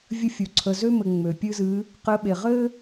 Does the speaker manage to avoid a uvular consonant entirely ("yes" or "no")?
no